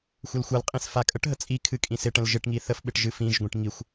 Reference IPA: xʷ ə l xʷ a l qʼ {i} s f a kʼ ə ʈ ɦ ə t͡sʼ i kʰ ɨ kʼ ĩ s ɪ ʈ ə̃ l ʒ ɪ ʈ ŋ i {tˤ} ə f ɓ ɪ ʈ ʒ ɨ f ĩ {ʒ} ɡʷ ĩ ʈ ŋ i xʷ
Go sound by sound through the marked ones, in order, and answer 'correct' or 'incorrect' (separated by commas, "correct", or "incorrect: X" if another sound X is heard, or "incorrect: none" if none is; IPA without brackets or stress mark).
incorrect: ĩ, incorrect: θ, correct